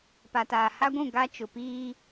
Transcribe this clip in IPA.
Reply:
p a˨ t aː˨ h a˦ ɡʷ ũ˦˨ ɡ a˦ t͡ʃ ʊ˨ p iː˦

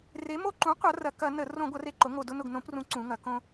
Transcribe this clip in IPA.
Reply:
r e˩˧ m o˧ ǃ ũ˩˥ qʷ ɐ˩˧ r ɐ˨˩ k ɐ˧˩˧ n ə˧˩˧ r õ˧˩˧ ɡʷ ɐ˩˧ r e˨˩ ǃ ʊ˩˧ ŋ o˨˩ d ʊ˧ n ʊ˨˩ ɡ n õ˧˩˧ p r ũ˩˥ ǀ ũ˩˧ ŋ ɐ˩˧ k õ˧

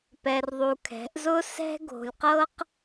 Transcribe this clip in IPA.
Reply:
p ɛ˧ r ðˤ u˧ kʰ ɛ̤˨˦ ʔ z ʊ˦ s ɛ̤˦ ɡ o̤˧ lʲ q ɤ˦ q

